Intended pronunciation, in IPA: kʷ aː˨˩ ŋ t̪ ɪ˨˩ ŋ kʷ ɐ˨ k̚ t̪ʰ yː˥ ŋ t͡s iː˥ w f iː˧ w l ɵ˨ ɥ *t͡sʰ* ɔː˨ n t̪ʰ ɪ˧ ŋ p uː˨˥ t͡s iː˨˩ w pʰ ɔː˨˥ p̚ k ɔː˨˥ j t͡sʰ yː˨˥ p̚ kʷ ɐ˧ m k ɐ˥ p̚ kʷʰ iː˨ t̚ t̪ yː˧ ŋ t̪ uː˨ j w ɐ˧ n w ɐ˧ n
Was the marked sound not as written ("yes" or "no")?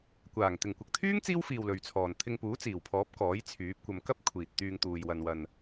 no